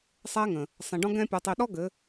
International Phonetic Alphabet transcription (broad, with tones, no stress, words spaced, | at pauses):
sˤɛ˦ŋə̃˨ | sˤẽ˨ɖɔ̃˦ ɡɛ̃˧pʲɔ˨tˤi˨ɗɔ˦ ɡɘ˨˦